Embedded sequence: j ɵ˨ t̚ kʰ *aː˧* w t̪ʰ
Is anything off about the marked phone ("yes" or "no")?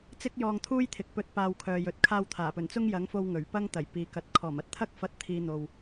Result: no